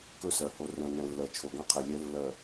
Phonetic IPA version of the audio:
k ɵ˦ s ɜ˨ h o˨ r ɛ̃˨ n ɛ̃˨ lː ɜ˨ t͡ʃʰ o˨ ɡ ã˦ qʰ ɛ˨ lʲ ɛ˨˦ lː ɜ˨

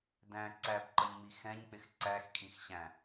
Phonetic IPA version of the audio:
d æ̃ ǀ æ b ǃ ʌ ɲ ŋ͡m i x ɛ̃ ɲ k͡p ɪ x ǀ æ x kʼ ĩ x ɕ æ̃

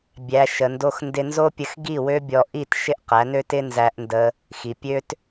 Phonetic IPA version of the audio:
bʲ æ˨ ʃ ə˨ n d o˧ x n d ɪ˧ n z o˦ pʲ ə˧ x ɡ i˦˨ w ø˦ bʲ ɔ˧ ʔ i˦˨ t ʃ ɪ˦ ʔ q æ˨˦ n ø˦ t ɪ˦ n z æ˦ ʔ n d ə˦ | x i˨ pʲ ø˦ t

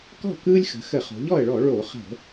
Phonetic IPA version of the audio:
k ɔ̤˥˩ k ɯː˦ lʲ x ə̤˩˧ x ə˧˩˧ χ o̤˩˧ ʎ ɔ˥˩ ə̯ ɭ ɔ˧˩˧ ɭ o˧˩˧ χ ə̤˧˩˧

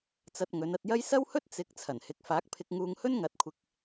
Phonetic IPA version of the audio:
t͡s ɐ˧ t̚ ŋ ɵ˨˧ n ɐ˧ t̚ j ɐ˥ j s ɐ˥ w h ɵ˥ t̚ t͡s ɪ˨˥ k̚ t͡sʰ ɐ˨˩ n h ɪ˨˥ k̚ f aː˨˥ k̚ pʰ ɪ˧ k̚ ŋ uː˧ ŋ h ɵ˥ n ŋ ɐ˨˥ t̚ kʷʰ ɪ˧ k̚

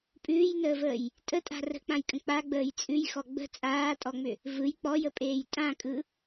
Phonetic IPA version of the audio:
pʼ ʉː j n əː v əː j | tʼ ə tʼ a̤ r ə̤ k͡p ã j kʼ ə̃ k͡p a ɡ͡b əː j t͡sʼ ʉ j x ɔ ɡ͡b ə̤ t͡sʼ aː tʼ ɔ ŋ͡m ʏ | v ɯ j k͡p ɔ j ə pʼ eː j tʼ ã kʼ ɯ

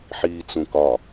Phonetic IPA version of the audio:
ħ iː t͡s ũ k ɒ

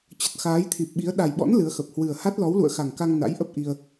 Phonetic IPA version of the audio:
t͡ɕ ə˨˩ t̚ x aː˨˦ j t̪ʰ i˨˩ p̚ ɓ i˨˦ ə̯ ɗ a˨˩ j ɓ ɔ̰˧˥ n l ɨ˨˦ ə̯ x ə˨˩ p̚ h w ɨ˨˩ ə̯ h a˦˥ t̚ l ɔ˨˦ w l ṵ˧˨ ə̯ x a˨˩ ŋ k a˧ ŋ n a̰˧˥ j ʔ ə˦˥ p̚ ʔ i˧ ə̯

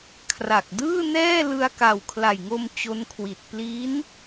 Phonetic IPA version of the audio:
kʰ r a˨˩ k̚ d ɯː˥˩ n ɛː˥˩ l ɯ˧ a̯ k a˨˩ w kʰ l a˨˩ j ŋ o˧ m t͡ɕ o˦˥ n kʰ w i˨˩ t̚ p l i˦˥ n

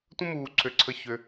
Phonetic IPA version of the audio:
tʷ ə̃˦ m uː˧ ǀʰ ø˧ ǀʰ ə˦˨ ç ø˧

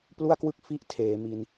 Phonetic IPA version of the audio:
p l u˥˩ a̯ k w ɯ˥˩ k̚ f i˦˥ ʔ tʰ eː˩˦ m i˧ n

